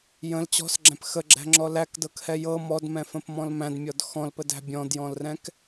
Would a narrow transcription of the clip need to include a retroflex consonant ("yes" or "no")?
no